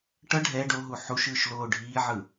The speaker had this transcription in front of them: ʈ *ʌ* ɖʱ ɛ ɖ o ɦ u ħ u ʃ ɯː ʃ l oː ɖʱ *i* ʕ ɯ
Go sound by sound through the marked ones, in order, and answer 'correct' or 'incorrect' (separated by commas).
correct, incorrect